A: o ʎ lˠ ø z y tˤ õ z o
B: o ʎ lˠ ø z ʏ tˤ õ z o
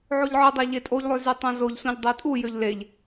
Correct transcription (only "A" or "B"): A